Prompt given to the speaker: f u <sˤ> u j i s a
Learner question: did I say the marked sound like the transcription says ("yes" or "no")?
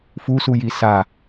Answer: no